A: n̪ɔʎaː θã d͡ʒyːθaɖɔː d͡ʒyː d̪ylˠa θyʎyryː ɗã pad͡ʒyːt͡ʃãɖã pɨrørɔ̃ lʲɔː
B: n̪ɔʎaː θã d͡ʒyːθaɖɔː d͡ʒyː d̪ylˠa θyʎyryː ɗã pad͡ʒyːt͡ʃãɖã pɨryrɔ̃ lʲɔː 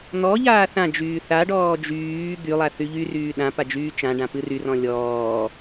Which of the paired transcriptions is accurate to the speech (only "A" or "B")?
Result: B